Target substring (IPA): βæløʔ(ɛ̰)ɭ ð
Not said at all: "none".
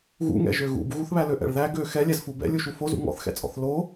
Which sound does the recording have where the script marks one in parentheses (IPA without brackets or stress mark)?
ɛ̰